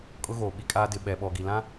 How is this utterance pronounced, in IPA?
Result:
kʼ ʊ˦ ɣ oː˨ ɓ i˦ kʼ aː˦ d ɪ˨ ɓ ɛ˨ ɓ ɔ˨ ɡ i˨ l ã˦

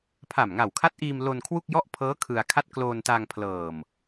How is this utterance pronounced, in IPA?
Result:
pʰ a˨˩ m ŋ a˨˩ w kʰ a˦˥ t̚ ʔ iː˧ m l o˧ n kʰ w u˥˩ k̚ j ɔ˥˩ ʔ pʰ ɤː˦˥ kʰ ɯ˧ a̯ kʰ a˥˩ t̚ k l o˧ n t a˧ ŋ pʰ l ɤː˨˩ m

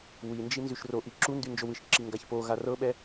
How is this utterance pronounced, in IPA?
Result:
w i n d͡ʒ i n z y ʃ r o ʔ i ǁ u n d y n d͡ʒ o w ɯ ʃ ǁ i ŋ ɡ a ç p o ɣ a r ɤ ɓ ɛ

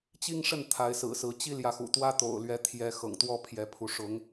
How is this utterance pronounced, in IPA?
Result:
t͡ɕ i˦ ŋ ʂ ə˥˨ n t̪ʰ a˨˦ ɪ̯ s ɹ̩˨˩ s ɹ̩˨˦ t͡ɕ i˦ l j ä˨ x ṵ˨˩ t̪ w ä˦ t̪ o̰˨˩ ʊ̯ l ɥ ɛ˨˦ t̪ʰ j ɛ˨˦ x ɤ̰˨˩ ŋ t̪ w ɔ˦ pʰ j ɛ˨˦ pʰ u˨˦ ʂ ʊ˨˦ ŋ

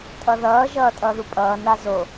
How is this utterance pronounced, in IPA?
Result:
tʼ ʌ ð ʌː ʒ ʌː tʼ ʌː ð u pʼ ʌː n a z o

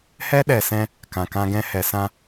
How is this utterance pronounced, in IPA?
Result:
h ɛ˦ ɗ ɛ˨ s ɛ̃˧ | k ã˨ k ã˧ ɡ ɛ̃˧ h ɛ˨ s ã˧

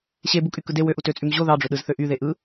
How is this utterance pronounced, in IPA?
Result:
ɕ e b u kʼ y k ɯ d e w ø ʔ u t ø t͡sʼ y m ʑ o ð ɑ ɖ͡ʐ ø ɗ ɯ z θ ø ʔ y ð e ʔ ɯ

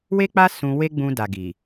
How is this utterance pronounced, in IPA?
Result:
w e˦ k͡p a˦ s ũ˧ w e˦ ɡ͡b ũ˧ d a˨ ɡ i˨

